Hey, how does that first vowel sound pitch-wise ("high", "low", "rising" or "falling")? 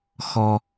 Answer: high